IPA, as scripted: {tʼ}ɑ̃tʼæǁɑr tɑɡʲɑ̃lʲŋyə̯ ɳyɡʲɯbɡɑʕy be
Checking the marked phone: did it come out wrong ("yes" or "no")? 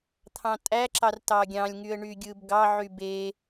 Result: yes